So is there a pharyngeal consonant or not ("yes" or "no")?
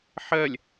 yes